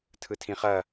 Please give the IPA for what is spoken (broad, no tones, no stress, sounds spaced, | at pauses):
tʰ ɯ tʰ ĩ χ ɐ